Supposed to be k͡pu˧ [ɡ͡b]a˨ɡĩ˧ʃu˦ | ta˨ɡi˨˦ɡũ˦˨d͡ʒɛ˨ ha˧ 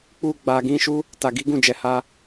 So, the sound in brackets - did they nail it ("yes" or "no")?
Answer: yes